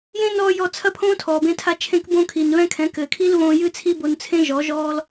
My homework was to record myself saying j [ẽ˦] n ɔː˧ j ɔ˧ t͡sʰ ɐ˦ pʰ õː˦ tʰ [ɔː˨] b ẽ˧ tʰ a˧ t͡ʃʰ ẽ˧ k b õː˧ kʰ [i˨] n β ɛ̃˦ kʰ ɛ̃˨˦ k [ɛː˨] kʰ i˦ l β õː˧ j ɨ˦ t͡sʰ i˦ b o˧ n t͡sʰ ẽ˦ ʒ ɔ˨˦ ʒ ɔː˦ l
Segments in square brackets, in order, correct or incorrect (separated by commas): correct, correct, correct, incorrect